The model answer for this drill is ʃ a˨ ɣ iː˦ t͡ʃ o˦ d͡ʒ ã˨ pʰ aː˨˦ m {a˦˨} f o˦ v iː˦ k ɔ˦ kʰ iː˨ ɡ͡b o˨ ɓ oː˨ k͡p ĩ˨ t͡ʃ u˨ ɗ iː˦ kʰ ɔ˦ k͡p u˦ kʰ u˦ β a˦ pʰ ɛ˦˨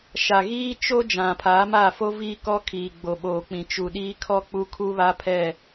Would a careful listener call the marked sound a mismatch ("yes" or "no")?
no